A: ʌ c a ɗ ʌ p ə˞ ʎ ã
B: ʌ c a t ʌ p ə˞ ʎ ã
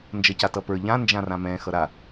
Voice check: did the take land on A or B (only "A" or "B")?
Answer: B